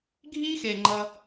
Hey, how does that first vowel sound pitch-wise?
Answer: high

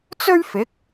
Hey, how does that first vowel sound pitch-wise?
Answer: high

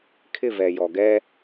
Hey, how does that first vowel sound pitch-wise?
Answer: falling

